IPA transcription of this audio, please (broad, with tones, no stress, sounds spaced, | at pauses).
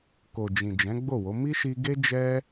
k o˨ d͡ʒ ĩ˨ d͡ʒ ɛ̃˨˦ ɡ͡b o˦˨ w o˨˦ m i˦ ʃ i˧ ɡ e˦ d͡ʒ ɛ˦